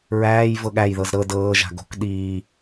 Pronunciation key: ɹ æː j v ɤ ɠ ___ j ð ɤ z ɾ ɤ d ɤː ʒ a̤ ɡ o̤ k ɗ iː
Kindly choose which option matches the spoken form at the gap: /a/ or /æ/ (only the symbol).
æ